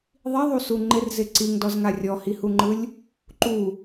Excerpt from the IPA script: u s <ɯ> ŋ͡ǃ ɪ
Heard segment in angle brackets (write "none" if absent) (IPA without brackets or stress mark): u